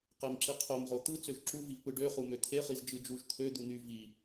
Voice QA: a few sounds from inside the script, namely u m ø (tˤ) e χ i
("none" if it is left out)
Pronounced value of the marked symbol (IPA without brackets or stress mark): t̪ʰ